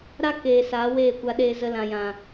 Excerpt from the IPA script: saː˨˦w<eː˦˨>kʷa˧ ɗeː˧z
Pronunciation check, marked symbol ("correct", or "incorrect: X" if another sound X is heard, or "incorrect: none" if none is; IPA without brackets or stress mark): correct